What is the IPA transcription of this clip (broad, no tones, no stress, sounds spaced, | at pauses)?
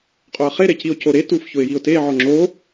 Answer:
qʼ o ə̯ χ e ɾ e c i ʊ̯ c o ɾ e t u f ç ʊ ɪ̯ j i ʊ̯ t e ʕ ɔ ŋ͡ǁ o